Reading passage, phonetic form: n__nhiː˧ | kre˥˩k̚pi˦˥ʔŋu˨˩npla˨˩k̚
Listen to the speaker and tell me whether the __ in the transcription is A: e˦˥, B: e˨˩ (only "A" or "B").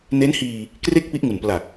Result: A